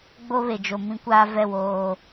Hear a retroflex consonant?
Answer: no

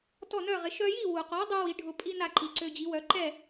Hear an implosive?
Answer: no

